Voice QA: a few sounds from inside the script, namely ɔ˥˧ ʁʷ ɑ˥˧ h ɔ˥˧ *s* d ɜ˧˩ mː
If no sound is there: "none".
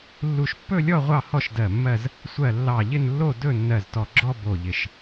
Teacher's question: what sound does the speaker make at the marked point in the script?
ʃ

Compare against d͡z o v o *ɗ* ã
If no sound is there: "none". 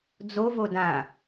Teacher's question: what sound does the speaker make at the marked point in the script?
d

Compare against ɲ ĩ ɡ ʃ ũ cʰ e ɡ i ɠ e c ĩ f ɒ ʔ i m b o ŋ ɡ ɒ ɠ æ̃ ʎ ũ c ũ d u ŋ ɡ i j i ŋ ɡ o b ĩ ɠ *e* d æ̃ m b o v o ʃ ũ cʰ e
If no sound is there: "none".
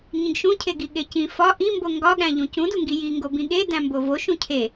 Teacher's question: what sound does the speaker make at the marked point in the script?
e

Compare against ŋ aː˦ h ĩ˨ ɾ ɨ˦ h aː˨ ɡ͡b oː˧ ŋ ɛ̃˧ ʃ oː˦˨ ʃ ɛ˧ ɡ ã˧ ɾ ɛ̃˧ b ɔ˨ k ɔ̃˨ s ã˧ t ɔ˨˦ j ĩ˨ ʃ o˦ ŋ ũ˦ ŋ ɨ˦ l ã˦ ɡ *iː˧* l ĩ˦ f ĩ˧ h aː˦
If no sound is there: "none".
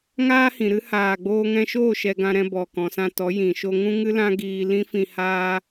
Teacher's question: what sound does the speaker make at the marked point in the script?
iː˧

